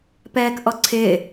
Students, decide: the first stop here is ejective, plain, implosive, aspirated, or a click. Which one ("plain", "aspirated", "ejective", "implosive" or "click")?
plain